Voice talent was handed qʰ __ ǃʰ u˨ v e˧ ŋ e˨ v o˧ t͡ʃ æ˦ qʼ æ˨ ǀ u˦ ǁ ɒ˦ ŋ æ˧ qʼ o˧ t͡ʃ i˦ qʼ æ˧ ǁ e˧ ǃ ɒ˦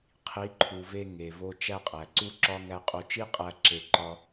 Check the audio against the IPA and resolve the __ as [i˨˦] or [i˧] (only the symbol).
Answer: i˨˦